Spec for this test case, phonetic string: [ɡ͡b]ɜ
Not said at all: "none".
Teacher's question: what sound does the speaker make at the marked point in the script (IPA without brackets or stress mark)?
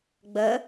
ɡ͡b